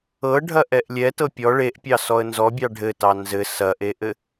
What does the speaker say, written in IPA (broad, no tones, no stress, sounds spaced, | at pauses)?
ɤ ɖʱ ɐ ʔ ɛ ʔ lʲ ɛ t ɤ pʲ ɔ ɭ e ʔ pʲ ɑ s ɔ ə̯ n z ɔ bʲ ɑ ɖʱ ɘ t ɑ n z ɘ s ɐ ʔ e ʔ ɘ